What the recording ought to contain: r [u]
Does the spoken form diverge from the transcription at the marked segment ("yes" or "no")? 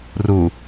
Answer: no